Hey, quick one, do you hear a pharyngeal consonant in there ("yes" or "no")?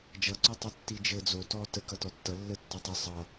no